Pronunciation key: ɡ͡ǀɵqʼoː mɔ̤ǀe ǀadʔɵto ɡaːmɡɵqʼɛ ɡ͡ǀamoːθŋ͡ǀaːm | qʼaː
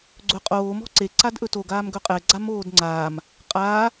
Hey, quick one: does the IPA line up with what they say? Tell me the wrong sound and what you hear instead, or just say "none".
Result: θ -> d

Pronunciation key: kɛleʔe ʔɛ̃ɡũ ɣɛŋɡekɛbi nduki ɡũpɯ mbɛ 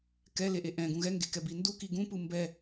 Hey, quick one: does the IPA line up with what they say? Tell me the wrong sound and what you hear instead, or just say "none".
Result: none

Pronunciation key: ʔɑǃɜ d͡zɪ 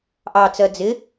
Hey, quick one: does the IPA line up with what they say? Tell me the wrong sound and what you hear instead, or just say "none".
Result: ǃ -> t͡s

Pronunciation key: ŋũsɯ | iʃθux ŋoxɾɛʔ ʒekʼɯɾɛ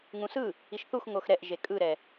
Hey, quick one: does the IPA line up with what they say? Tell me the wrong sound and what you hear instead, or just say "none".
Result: none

